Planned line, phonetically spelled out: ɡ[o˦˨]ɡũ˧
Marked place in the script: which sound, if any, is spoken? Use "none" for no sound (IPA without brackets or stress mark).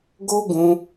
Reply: o˦